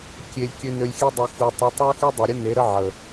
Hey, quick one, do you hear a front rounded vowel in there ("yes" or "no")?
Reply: yes